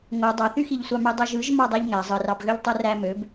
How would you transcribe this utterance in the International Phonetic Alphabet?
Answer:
ŋo dˤɑθyxiʎsʷɑ mydˤoʒɯʒ mɑdˤeʎŋæ zˤɯrɑbɣøʎtˤu ræmøb

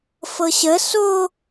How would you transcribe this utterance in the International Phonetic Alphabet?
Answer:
fɤɕə so

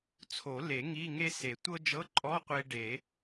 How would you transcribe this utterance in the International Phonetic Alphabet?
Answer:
t͡sʰo˨˩˦le˨˩˦ ŋi˧˥˧ŋe˥se˨˩˦ tʷɤ˥d͡ʒɤ˧˥˧ǃʼɔ˧˥˧ qʷe˧ ɖe˨˩˦

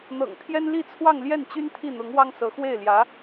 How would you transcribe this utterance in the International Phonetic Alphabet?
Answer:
n̪ɤ̰˨˩ŋt̪ʰjɛ˥n li˥˧t͡sʰwɑ˥˧ŋ ljɛ˥˩nt͡ɕy˥n t̪ʰi˥˩n̪ʊ˧˥ŋwɑ˥ŋ sɤ˧˥ xwe˥˩ɪ̯ljä˧˥

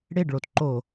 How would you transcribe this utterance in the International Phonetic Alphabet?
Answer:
ɽeɖɭotǃo

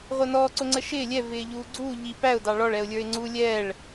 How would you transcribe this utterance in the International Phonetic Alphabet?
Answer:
ʁʷəːnɔːǀʊŋ͡ǀə ʃɪː lʲɛ vɪːʎuːɡ͡ǀuː ʎi pæʊ̯dɑ ɭɔɭɛʊ̯lʲə˞ɪ̯ ŋ͡ǀu lʲɛːɭ

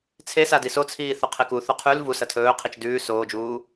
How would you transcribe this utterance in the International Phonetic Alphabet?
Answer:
t͡sʰesadi sot͡sʰiːθɵ qʰeku θoqʰʉl vu sɐtʰɵː qʰit͡ʃdʉː soːd͡ʒuː

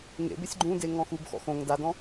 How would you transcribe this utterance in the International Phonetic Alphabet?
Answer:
ŋḛbesʲ ɡ͡ǃũde ŋɔ̃xubxɔ̰ xõŋ dadɔ̃

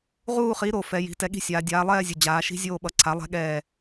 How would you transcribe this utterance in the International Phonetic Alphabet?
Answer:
ʁuː˦˨χi˩˥ ɾo˩ fɛ˩˧ji̤˩˧ tɛ˩˥ɠi̤˦˨sʲaː˩˧ dʲaː˩˧lˠɛː˦˨zʲu˩ d͡ʑaː˩˧ʃi̤˦zʲoː˦˨ ɓʌ˩˥ǀʰa˩˥ lˠɛ̤˦ɠɛː˦˨

